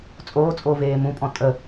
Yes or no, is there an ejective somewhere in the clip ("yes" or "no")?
yes